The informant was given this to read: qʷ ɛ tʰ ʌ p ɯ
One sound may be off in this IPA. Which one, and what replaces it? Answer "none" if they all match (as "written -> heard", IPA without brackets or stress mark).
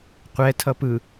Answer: none